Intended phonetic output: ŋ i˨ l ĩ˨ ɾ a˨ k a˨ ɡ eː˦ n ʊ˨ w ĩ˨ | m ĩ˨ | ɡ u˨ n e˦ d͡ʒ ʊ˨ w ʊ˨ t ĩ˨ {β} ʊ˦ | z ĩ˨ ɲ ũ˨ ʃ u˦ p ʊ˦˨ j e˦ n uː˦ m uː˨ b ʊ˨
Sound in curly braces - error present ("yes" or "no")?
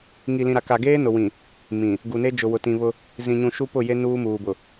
no